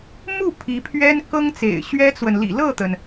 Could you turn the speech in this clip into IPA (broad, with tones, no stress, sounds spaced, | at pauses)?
m u˥˩ pʰ i˧˥ pʰ ɥ ɛ˥ n k ɤ˥ ŋ t͡s ḛ˨˩ ɪ̯ ɕ ɥ ɛ˥ t͡s w ə˨ n l ḭ˨˩ l ɤ˥˩ t̪ ə˩ n